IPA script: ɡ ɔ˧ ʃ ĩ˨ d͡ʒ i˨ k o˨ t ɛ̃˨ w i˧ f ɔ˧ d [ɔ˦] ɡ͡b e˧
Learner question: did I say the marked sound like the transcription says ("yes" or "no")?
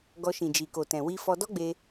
yes